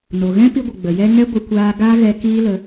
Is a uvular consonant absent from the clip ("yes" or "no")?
yes